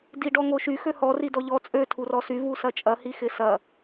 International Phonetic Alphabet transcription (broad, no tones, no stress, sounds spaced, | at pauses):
d i ɖ ɔ ŋ o ʃ y x ø h ɔ r i d ɔ ʎ ɔ t͡sʼ ø tʰ u r ɔ s y v u s ɐ t͡ʃʼ ɐ h i x ɪ s ɐ